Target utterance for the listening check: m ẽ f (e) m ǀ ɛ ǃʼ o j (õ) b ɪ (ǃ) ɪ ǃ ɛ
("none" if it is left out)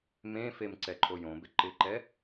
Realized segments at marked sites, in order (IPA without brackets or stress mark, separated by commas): e, õ, ǃ